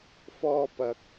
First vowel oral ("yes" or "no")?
yes